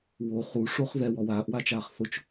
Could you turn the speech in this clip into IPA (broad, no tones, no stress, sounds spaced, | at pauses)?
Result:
w o χ u ʂ o χ ð ɛ w ɔ w aː ʔ w a t͡ʃ aː χ θ ʊ t͡ʃ